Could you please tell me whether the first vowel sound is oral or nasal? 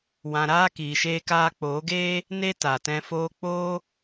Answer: nasal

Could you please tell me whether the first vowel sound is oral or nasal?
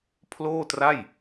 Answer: oral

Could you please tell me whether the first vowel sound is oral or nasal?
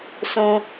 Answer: nasal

